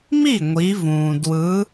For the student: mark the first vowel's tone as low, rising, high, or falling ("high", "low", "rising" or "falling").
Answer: falling